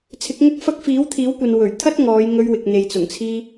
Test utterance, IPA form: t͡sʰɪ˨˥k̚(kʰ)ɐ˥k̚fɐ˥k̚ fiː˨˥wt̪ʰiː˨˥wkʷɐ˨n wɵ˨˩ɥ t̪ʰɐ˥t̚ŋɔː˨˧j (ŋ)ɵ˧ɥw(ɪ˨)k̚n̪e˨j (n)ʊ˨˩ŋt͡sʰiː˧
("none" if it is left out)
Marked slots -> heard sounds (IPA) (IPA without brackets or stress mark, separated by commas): ŋ, ŋ, ɪ˨, t͡s